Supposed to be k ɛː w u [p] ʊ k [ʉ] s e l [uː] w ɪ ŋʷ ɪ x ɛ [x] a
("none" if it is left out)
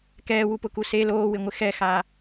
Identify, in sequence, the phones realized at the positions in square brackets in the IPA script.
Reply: p, u, oː, x

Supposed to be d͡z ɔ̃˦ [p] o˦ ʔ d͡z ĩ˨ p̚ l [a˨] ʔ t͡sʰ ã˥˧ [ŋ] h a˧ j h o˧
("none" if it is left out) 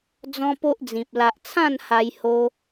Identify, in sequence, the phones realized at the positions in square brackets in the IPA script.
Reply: p, a˨, n

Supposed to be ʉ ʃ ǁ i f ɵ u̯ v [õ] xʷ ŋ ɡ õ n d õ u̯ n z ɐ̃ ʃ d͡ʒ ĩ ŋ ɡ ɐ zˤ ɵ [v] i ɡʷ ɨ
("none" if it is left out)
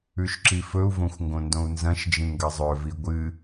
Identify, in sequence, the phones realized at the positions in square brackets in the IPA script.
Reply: õ, v

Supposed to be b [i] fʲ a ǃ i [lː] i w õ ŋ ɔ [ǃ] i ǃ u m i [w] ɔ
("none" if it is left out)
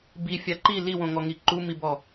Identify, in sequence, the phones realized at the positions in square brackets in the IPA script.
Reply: i, l, ŋ, b

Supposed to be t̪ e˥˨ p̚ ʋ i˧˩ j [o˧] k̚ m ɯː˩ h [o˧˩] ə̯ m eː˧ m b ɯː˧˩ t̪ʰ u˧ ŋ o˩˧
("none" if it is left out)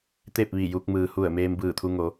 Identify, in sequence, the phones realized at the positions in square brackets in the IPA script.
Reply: u˧, u˧˩

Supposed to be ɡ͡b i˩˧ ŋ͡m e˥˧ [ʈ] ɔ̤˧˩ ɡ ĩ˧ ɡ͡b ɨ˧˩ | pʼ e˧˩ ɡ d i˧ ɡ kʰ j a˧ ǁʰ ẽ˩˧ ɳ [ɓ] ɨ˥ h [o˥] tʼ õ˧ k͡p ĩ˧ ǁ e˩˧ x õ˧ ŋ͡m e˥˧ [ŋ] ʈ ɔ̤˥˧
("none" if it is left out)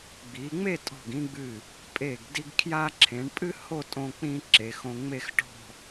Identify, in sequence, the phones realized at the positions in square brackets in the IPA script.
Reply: tʼ, pʼ, o˥˧, x

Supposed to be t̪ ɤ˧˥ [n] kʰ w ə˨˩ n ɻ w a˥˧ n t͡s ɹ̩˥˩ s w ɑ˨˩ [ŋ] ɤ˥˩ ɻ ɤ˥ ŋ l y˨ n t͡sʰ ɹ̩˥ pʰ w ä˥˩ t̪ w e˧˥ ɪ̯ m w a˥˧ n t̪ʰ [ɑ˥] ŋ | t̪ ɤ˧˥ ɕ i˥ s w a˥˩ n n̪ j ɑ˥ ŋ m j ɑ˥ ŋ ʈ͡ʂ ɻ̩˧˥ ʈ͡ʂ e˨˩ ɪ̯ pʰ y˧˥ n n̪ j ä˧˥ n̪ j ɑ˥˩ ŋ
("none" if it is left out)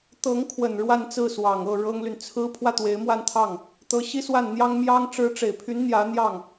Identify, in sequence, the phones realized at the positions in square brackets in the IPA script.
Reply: ŋ, ŋ, ɑ˥˩

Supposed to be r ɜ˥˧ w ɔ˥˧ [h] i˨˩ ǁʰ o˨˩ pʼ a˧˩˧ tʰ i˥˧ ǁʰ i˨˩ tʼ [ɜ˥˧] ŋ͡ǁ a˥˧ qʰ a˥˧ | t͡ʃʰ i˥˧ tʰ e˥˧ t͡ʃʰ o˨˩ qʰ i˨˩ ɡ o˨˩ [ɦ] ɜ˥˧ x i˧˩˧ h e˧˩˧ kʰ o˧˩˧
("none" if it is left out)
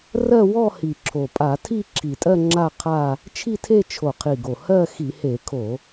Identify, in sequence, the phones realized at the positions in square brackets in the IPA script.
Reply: h, ɜ˥˧, h

